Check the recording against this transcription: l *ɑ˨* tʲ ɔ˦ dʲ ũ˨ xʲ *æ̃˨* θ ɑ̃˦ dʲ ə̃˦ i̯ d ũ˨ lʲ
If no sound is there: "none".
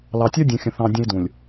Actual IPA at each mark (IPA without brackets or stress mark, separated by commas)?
ɑ˨, ə̃˨